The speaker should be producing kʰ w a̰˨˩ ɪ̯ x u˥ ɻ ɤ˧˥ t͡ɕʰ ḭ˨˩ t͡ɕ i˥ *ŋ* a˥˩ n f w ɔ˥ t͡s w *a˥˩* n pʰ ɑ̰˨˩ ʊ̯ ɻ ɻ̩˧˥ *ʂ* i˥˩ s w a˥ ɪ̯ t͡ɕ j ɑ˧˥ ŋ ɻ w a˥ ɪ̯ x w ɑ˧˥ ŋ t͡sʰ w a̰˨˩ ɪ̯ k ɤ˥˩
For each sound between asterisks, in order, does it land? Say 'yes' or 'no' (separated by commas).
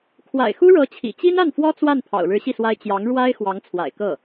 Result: no, yes, no